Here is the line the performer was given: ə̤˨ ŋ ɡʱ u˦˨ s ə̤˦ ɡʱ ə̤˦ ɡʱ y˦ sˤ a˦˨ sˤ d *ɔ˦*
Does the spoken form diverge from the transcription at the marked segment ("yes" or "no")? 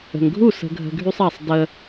yes